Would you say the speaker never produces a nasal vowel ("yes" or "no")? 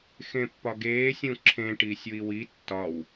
no